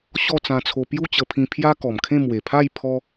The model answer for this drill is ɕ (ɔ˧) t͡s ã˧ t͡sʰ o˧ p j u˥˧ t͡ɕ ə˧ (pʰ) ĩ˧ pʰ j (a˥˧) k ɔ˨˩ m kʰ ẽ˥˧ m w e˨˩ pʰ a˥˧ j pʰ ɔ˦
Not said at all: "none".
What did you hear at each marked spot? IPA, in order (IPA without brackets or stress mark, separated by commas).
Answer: ɔ˥˧, pʰ, a˦